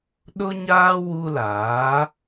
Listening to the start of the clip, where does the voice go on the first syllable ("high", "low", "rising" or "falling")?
high